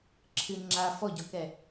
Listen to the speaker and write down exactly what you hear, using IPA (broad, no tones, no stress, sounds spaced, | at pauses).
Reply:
ǁʰ ɨ ŋ͡ǁ a f ɔ ɟ ɔ k ɛ